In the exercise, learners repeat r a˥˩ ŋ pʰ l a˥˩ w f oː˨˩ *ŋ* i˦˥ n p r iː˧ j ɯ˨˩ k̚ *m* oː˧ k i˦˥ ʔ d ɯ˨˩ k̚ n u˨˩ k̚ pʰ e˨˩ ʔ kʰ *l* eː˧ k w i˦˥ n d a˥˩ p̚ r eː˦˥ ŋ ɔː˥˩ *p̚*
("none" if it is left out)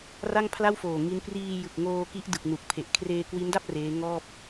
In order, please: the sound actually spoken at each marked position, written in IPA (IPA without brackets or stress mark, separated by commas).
ŋ, ŋ, r, p̚